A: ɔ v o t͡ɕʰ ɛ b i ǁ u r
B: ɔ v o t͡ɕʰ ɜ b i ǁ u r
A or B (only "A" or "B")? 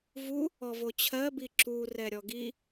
B